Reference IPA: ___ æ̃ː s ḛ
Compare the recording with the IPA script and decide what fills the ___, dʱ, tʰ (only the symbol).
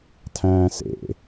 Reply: tʰ